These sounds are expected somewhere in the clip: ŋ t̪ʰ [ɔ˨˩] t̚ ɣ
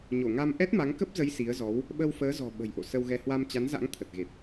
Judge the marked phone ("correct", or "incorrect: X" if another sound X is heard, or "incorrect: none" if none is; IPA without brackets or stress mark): incorrect: ə˨˩